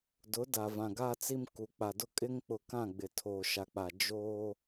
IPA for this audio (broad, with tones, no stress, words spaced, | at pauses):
dʊ˨˦da˨vã˨ ɡaː˦t͡si˦mku˨ k͡pa˨dʊ˦ kʼɪ˦ŋk͡pʊ˨kã˦˨ ɡ͡bɪ˨tʰoː˨ʃa˨k͡pa˨ d͡ʒoː˦